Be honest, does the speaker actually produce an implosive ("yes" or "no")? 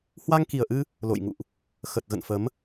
no